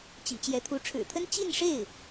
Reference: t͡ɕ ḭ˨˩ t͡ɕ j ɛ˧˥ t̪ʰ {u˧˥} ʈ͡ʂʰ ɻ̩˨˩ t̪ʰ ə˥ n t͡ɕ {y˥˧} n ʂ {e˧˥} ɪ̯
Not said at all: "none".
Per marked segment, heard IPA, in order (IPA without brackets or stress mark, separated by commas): u˧˥, i˥˧, e˥˩